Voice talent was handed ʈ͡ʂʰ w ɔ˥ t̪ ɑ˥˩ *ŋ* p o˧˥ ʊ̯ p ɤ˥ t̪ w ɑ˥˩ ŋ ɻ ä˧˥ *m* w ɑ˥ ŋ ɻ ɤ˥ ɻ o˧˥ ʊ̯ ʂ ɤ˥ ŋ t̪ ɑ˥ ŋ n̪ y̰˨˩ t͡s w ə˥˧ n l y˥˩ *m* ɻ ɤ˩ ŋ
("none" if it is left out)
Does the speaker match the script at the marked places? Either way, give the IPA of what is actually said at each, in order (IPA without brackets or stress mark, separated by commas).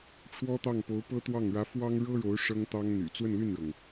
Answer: ŋ, f, n